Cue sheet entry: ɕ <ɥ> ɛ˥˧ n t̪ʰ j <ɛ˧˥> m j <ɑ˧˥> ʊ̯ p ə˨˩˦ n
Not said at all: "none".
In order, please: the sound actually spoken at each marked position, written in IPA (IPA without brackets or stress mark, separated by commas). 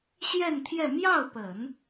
j, ɛ˥˧, ɑ˥˩